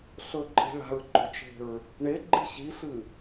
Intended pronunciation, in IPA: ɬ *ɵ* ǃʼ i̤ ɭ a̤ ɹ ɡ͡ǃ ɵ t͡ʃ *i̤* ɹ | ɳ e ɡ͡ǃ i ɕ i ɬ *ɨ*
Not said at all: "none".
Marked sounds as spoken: ɵ, e̤, ɨ

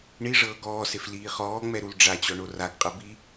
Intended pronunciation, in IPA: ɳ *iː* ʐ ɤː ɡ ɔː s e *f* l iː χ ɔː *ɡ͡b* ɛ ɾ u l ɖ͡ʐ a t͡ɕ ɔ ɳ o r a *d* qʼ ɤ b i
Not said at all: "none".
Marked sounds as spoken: i, f, ŋ͡m, ɡ

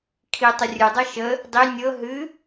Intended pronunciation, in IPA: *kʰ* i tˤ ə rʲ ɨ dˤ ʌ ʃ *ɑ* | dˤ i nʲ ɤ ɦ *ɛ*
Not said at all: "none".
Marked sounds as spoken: kʰ, ə, ɨ

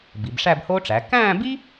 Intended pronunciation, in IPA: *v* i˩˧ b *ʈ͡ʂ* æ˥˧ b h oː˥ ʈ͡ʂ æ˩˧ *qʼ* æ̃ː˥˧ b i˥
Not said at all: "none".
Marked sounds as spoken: b, ʂ, k

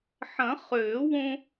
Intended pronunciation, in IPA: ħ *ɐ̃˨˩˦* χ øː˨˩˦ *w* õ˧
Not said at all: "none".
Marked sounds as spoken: ɐ̃˨˩˦, w

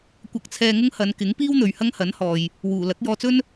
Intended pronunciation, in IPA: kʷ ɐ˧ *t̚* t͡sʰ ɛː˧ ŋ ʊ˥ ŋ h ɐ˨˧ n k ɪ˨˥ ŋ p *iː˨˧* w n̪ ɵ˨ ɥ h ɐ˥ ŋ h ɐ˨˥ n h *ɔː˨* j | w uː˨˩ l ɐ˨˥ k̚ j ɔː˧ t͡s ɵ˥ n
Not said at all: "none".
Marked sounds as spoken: k̚, iː˥, ɔː˨

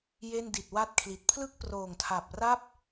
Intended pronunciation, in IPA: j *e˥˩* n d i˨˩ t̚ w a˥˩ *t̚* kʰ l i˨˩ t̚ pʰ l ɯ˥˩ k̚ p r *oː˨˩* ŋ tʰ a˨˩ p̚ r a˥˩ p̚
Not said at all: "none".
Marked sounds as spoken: e˥˩, t̚, oː˨˩

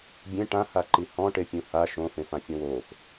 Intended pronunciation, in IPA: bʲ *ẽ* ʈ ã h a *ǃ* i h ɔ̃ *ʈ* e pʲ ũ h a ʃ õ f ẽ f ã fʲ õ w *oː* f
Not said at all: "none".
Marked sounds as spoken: ẽ, ǃ, ʈ, oː

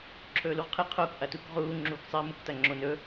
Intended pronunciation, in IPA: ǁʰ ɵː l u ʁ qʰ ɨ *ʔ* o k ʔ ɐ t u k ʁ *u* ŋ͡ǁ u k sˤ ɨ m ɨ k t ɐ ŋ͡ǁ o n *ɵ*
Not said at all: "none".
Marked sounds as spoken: qʰ, uː, ɵ

